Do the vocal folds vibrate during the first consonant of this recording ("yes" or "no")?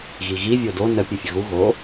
yes